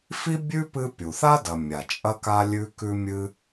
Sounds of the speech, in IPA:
f i˥ bʲ ʉ˥ p ɨ˦ pʲ u˩ θ a˥ d ɐ˨ mʲ a˩ t͡ʃʼ ɐ˦ k a˦ lʲ ʉ˦ k ʉ˦ mʲ ɨ˦

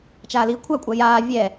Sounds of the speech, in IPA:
t͡ʃ aː l iː kʷʰ a kʷʼ a j aː vʲ ɛ

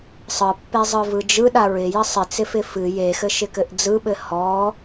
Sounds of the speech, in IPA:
sˤ ɯ pː e zˤ ɯ v ɯ d͡ʒ ɯ ɗ a ɹ ɪ j ɘ sˤ ɪ t͡s ɪ f ɪ f ɨ j e x ɘ ʃ ɪ k ɘ ʔ d͡z ɯ ɓ ɘ h ɔ

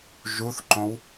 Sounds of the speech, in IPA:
ʒ u θ ǃ õ w

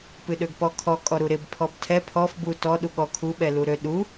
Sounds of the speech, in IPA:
p ɨ ɗ ø ɡ p ɔ kʰ ɔ kʼ ɔ ɾ u ɾ ɪ b pʰ ɔ b tʰ ɛ pʰ ɔ f b u t ɔ ɗ u ɠ ɔ kʰ u ɓ ɛ l u ɾ ø ɗ u

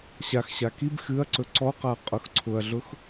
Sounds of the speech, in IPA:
ɕ a x ɕ a k i b x ɨ ɐ̯ ǀ ɵ ǀ ɔ q a qʼ ʊ x ǀʰ ʊ ɐ̯ ɮ ʊ x

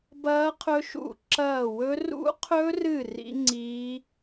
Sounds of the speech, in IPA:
b ɐː˦˥ qʰ ɵ˦˥ ʃ ṵ˦˨ ǁ ɐː˦˨ w ɵ˦˥ r ṵ˦˥ qʰ ɵ˦˥ r ɨ˦˨ r ḭ˦˥ ŋ͡ǀ iː˦˥

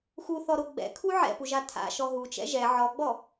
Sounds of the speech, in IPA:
x u θ ɔ ɾ o ɡ͡b ɛ̰ kʰ u ʕ ɛ̰ p u ʒ a tʰ a̰ ʃ ɔ ɦ u t͡ʃ ɛ̰ ʒ ɛ ʕ ɔ ɡ͡b ɔ

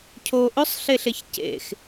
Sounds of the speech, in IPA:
cʰ o ʔ ɵ sˤ ɬ e ɬ e ç c ḛ x

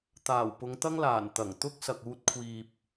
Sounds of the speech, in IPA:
t̪ aː˨˩ w p ʊ˨˧ ŋ t̪ ɐ˥ ŋ l aː˨˩ n t̪ ɐ˨˩ ŋ t̪ ʊ˥ k̚ s ɐ˨ k̚ uː˧ t̚ kʷʰ iː˨ p̚

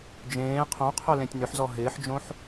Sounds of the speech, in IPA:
d͡ʒ ẽː qʰ õ qʰ œ l ẽ tʲ n ʏ ħ z ɔ ɦ ɪː ħ d͡ʒ õ ħ

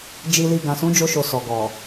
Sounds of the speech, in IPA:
d͡ʒ i˨ l i˨ ɡ ã˨ s ũ˨˦ d͡ʒ o˧ ʃ o˨ s ɔ˨ ɡ ɔ˨

